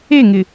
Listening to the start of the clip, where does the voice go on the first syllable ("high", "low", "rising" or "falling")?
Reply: falling